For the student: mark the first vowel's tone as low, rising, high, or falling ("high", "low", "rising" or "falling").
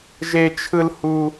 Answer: high